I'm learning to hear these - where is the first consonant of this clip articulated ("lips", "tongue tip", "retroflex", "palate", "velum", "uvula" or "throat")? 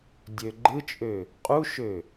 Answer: tongue tip